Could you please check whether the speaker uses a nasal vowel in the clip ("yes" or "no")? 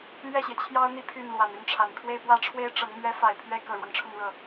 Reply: no